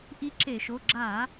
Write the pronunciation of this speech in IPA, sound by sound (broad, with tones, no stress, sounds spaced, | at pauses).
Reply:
ʔ i˧˥ ǁ e˧˩˧ ʃ o˩˧˩ ɡ͡ǁ a˧˩˧